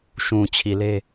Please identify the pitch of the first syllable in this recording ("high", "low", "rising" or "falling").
low